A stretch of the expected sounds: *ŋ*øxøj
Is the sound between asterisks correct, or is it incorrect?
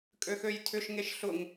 incorrect